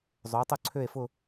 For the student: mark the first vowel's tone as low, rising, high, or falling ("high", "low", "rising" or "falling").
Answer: rising